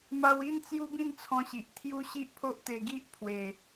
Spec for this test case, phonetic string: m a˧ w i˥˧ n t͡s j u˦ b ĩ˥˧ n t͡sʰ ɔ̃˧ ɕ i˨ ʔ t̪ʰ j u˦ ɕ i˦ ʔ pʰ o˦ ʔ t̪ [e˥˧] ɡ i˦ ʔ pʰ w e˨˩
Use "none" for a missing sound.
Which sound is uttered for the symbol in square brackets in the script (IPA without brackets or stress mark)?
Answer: e˧